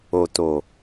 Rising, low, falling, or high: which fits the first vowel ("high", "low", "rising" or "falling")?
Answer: low